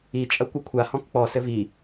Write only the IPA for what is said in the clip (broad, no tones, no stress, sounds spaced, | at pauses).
i t͡ʃʼ ɐ kʷ ɘ kʷʰ a h ɔ̃ k k͡p ɔ s ɘ v i